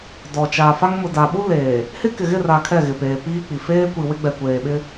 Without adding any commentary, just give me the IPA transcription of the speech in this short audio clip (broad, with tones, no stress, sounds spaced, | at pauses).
d ɔ˨ t͡ʃ aː˨ f a˦ ŋ m ʊ˨ d a˨ ɓ u˦ l eː˨ | h ɪ˦ k ɪ˨ ɣ ɪ˦˨ r a˨ kʰ ɛ˦˨ ɣ ɪ˨ p eː˨ p iː˦ k͡p i˨ f eː˦ kʷ i˨ w ɪ˦ ɡ͡b ɛ˨ kʷ eː˨ ɓ ɪ˦